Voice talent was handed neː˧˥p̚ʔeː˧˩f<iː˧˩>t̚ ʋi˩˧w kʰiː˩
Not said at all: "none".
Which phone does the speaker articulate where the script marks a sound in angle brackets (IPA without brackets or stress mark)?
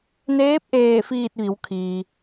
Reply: iː˧˩